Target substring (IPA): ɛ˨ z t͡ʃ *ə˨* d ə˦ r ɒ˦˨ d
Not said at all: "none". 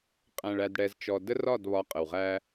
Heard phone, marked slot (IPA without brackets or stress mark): ɔ˨